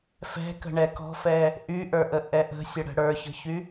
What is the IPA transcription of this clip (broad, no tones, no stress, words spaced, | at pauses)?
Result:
fɛ̤kə̤ɳɛ kɔ̤fɛ | ʔyʔə˞ʔəʔɛ ʔə̤sʲəɽə̤ ɽə˞çə̤çy